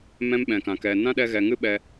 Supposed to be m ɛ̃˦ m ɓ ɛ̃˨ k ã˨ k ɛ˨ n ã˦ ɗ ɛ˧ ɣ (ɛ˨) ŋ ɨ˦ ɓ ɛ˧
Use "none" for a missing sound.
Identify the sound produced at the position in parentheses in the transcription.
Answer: ɛ˨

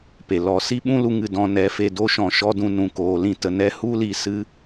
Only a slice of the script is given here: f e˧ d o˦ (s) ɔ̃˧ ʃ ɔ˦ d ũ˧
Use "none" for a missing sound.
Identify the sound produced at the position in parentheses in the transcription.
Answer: ʃ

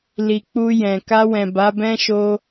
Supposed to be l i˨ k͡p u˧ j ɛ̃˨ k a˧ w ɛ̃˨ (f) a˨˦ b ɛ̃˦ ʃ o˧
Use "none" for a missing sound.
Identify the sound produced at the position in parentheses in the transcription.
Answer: b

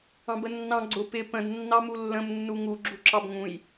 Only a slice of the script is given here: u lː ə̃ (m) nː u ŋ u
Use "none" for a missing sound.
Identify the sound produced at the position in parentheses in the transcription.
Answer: m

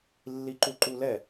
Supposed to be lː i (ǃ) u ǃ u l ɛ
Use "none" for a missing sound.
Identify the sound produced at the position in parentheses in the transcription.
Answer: ǃ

